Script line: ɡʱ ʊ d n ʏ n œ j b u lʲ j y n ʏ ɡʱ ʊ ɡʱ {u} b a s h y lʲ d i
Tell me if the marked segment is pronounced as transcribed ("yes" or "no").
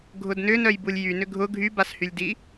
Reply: no